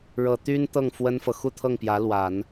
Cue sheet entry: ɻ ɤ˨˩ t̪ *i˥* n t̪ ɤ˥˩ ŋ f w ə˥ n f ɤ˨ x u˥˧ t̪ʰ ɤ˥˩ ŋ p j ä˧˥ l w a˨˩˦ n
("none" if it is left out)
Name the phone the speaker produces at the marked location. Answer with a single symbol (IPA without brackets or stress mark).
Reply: y˥